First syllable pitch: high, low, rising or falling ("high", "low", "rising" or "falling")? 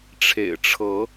low